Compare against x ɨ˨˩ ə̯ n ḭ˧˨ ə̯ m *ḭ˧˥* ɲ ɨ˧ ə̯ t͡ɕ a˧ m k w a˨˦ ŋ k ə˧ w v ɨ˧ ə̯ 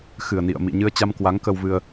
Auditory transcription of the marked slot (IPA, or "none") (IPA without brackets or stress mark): ḭ˧˨